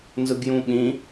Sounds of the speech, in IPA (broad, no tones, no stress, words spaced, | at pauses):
nzɯɡjũɓĩ